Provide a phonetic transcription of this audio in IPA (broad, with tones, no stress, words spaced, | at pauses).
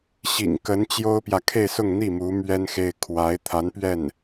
ɕḭ˨˩ŋ kə˧˥nt͡ɕjo˥ʊ̯pjä˨ kʰe˥˧ɪ̯sʊ˥˧ŋn̪i˥˩ mu˧˥ mɥɛ˥nxe˥ɪ̯ kʰwa˧˥ɪ̯t̪ʰa˧˥n pɥɛ˥˩n